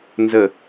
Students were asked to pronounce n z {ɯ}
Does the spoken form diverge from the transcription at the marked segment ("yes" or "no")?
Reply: yes